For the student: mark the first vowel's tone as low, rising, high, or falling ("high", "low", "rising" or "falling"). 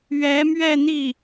rising